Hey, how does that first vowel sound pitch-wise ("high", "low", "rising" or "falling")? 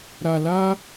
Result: low